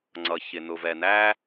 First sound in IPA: ŋ͡ǀ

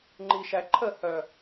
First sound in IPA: ŋ͡ǃ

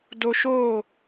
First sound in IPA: d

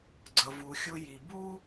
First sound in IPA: ɡ͡ǀ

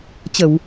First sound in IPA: t͡ɕ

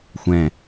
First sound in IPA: xʷ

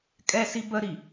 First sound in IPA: kʼ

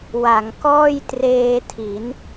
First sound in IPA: w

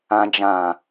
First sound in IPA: ã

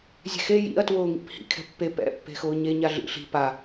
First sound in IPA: zʲ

